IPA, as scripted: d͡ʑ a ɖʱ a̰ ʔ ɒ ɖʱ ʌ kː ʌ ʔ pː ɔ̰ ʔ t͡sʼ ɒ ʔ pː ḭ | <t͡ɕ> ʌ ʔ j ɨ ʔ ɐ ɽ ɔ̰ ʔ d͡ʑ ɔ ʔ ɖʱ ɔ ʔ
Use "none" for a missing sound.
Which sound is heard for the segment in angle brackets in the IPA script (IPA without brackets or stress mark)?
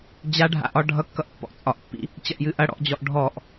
t͡ɕ